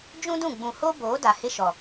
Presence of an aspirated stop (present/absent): absent